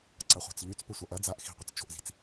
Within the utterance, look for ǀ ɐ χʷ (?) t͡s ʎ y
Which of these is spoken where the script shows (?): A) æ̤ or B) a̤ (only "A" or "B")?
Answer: B